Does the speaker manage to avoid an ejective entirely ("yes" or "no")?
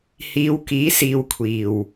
yes